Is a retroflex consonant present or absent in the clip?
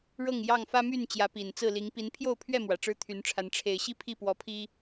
present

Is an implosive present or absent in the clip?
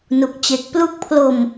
absent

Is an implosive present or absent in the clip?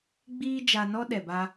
present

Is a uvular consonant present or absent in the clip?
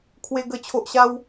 absent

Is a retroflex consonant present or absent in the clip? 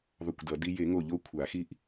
absent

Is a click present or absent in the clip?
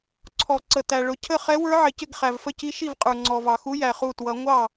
present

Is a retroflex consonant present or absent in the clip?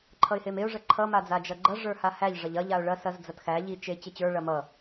present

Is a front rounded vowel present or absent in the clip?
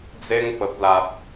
absent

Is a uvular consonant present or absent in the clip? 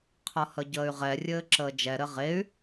present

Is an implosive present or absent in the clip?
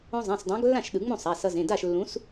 present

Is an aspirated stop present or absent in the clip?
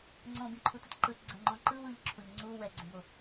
present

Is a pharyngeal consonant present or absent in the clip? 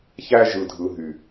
absent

